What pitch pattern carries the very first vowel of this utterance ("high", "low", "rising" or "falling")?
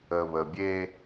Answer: low